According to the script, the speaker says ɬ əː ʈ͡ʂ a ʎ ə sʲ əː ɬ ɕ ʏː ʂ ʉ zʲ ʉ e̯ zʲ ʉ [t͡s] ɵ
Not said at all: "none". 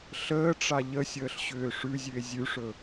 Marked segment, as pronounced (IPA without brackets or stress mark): ʂ